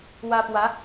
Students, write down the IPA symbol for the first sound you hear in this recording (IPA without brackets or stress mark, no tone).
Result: w